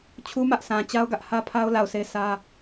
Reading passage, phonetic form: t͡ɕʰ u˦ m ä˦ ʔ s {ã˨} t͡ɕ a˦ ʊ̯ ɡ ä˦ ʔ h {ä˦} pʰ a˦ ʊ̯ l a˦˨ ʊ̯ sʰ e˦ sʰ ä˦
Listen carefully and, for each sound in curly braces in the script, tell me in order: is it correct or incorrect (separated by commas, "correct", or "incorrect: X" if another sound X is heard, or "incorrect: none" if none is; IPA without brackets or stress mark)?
correct, correct